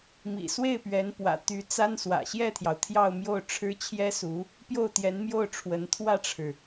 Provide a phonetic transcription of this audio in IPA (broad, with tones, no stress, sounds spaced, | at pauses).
m ḭ˨˩ s w e˥˩ ɪ̯ p ɥ ɛ˧˥ n p w ä̰˨˩ t̪ y˧˥ t͡s a˥ n s w ä̰˨˩ ɕ j ɛ˥˩ t̪ʰ j ɑ˩ ʊ̯ t̪ʰ j ɑ˥˧ ʊ̯ m j o˥˩ ʊ̯ ʈ͡ʂʰ ɻ̩˥ t͡ɕʰ j ɛ˥ s u˧˥ | p j o˥˩ ʊ̯ t̪ j ɛ˧˥ n m j o˥˩ ʊ̯ ʈ͡ʂʰ w ə˧˥ n t̪ʰ w ä˥˩ ʈ͡ʂʰ ɻ̩˩